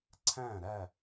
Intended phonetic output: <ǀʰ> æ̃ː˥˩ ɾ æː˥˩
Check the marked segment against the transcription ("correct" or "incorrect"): correct